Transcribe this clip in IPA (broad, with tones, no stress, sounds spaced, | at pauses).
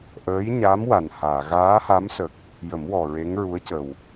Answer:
ʔ əː˧˥ j ɲ a˧˥ m w a˨˩ n h aː˨˩˨ ɣ aː˧˥ h a˧˥ m s ə˨˩ k̚ | j ə˨˩˦ m w ɔ˨˩ ɹ e˧˥ ŋ ɹ u˧˥ ə̯ c ə˨˩ w